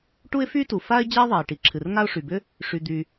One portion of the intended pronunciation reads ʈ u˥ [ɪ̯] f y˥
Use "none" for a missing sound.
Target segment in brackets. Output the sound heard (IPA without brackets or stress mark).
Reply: ɪ̯